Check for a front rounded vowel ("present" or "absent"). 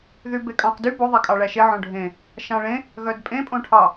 present